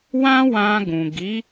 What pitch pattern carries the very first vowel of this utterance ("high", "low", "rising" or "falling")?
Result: high